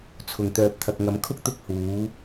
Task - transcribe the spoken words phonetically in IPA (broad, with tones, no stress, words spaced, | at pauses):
t͡sʰʊ˨ŋt̪œː˧p̚ t̪ʰɐ˨k̚ŋɐ˨˧mkʰʊ˥k̚ t̪ʊ˥k̚huː˨˥